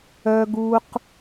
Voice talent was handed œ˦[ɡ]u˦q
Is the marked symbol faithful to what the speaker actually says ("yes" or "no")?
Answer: yes